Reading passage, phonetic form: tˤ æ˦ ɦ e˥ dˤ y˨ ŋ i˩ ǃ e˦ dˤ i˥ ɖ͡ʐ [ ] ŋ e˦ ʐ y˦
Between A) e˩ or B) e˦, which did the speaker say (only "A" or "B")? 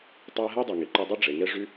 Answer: A